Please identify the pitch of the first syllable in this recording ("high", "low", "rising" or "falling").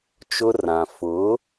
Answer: high